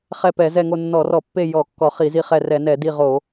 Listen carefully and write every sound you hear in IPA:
χɛ˦˨pɛ˧˩˧zɛ˦˨ŋo˦˨ nːɔ˧˩˧rɔ˧˩˧pːe˦˨ jɔ˧˩˧ kːɔ˧˩˧χi˧˩˧zi˦˨χɛ˦˨ rɛ˧˩˧nɛ˧˩˧di˦˨ ʁo˧˩˧

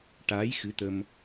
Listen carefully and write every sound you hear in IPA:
ʈaː˧˥jxɨ˧˥t̪ə˧m

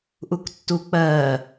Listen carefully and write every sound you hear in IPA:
ʔuktːuk͡pɜː

